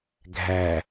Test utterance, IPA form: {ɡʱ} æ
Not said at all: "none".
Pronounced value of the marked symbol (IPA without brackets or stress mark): ɡʱ